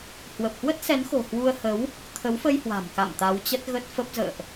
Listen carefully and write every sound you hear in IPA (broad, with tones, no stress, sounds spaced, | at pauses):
h w ə˨˩ p̚ h w ə˦˥ t̚ s ɛ˨˦ n x o̤˨˩ h w u˧ ə̯ h ə˨˦ w | t̪ʰ ə˨˦ w f ə˧ j h w a̤˨˩ m k a̰˧˨ m t̪ a˨˦ w t͡ɕ ə˦˥ t̚ ɣ ə˦˥ t̚ f ə˦˥ p̚ z ə̰ː˧˨ ʔ